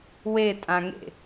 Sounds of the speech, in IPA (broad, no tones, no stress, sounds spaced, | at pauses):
w e tʼ ã ŋ ḛ